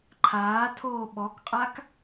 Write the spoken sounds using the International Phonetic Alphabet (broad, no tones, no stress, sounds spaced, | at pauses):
ǃʰ aː tʰ oː ɓ ɔ k qʼ a k